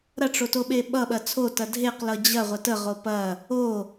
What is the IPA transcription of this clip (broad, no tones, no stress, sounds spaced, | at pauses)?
ɾ ɐ ʈ͡ʂ o t o ɓ e ɓ ʌ ɓ ɐ t͡sʰ o t ɐ dʱ e q l ʌ d͡ʑ ɐ ʁʷ ə t ə ʁ o p ɐ | o